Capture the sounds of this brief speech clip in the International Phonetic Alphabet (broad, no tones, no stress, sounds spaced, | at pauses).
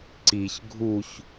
ǀ i ç ɡʱ u ç